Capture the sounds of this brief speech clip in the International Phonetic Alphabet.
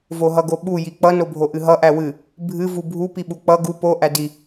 v o ɦ ʌ ɡ o ɓ u j i k͡p ʌ n o bʱ o ʔ ɨ ɦ ʌ ʔ æ w ɨ | bʱ ɨ v u bʱ u p i ɓ u k͡p ʌ ɡ u p o ʔ æ d i

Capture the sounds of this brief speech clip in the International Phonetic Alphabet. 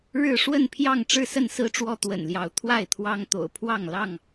ɻ ɻ̩˥˨ ʂ w ə˥˨ n pʰ j ɑ˥˨ ŋ ʈ͡ʂ ɻ̩˥˨ s ə˥˨ n s ɹ̩˦ ʈ͡ʂ w ɔ˦ t̪ w ə̰˨˩ n l j ɑ˨˦ ʊ̯ t̪ʰ w a˥˨ ɪ̯ t̪ʰ w ɑ˦ ŋ t̪ o̰˨˩ ʊ̯ pʰ w ɑ˥˨ ŋ l ɑ˥˨ ŋ

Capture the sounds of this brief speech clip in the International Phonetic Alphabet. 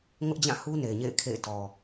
ŋ ʊ˦ ʔ d͡ʑ ã˦˨ h u˦ n e˨ ɪ̯ ɲ ḛ˦˨ ɪ̯ kʰ ḛ˦˨ ɪ̯ t ɔ˨

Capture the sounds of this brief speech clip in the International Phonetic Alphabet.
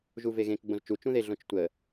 ʒ u v e ɣ ẽ k ɡ͡b õ z t͡ʃ u t͡ʃ ũ ð e ɮ õ t͡ʃ tʷ ə

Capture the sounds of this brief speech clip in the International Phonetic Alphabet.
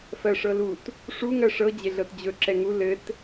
f ɜ ʂ ɤ l u t | ʂ u ŋ ɜ ʂ ɤ d͡ʑ e ɮ ɤ t d͡ʑ ɵ ǁ ɛ ŋ u l ɘ t

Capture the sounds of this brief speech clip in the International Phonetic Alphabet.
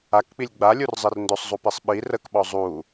a k k͡p i lʲ ɡ͡b a lʲ u r zˤ i r n d ɵ sˤ zˤ u p i sˤ ɓ i r ə k ɓ ɔ zˤ u

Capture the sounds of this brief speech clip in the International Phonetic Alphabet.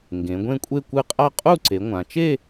ŋ ɡ ẽ˩˧ ɡʷ ẽ˥˧ kʷʼ e˥˧ kʷ ɨ˥˧ qʼ a˥˧ qʼ u˥˧ ǀ e˩˧ ŋʷ ã˩˧ t͡ʃ e˥˧

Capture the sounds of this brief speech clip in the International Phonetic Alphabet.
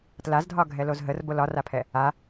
t l a z dʱ ɒ ɡʱ ɛ l o z ɦ ə r b o l ɒ r a pʰ ɛ | a

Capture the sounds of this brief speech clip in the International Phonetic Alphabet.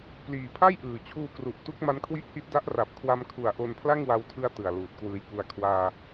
p l iː˨˩ pʰ a˥˩ j ʔ ɯː˨˩ t͡ɕʰ uː˧ k r u˨˩ ʔ t u˦˥ k̚ m a˦˥ n kʰ w i˦˥ ʔ h i˦˥ t̚ d a˦˥ ʔ r a˨˩ p̚ kʰ w a˧ m kʰ u˨˩ a̯ ʔ o˧ n pʰ l a˥˩ ŋ w a˧ w tʰ ɯ˦˥ a̯ t ɯ˨˩ a̯ l uː˨˩ t̚ k w ɯː˧ j k u˧ a̯ kʰ w aː˧

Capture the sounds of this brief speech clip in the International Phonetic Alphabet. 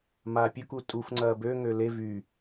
m aː pʲ ʊ k u tʼ u f ŋ͡ǀ ɐː b ø ŋ ø l e v y

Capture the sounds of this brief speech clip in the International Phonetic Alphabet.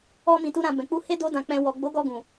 ɔ˦ m ĩ˧ t u˦ ɾ ã˧ b ɛ̃˨ k͡p u˧ h e˦ d o˦ d ã˧ k͡p ɛ̃˧ w ɔ˨ ɡ͡b o˨˦ ɡ ɔ˧ ɡ ũ˨

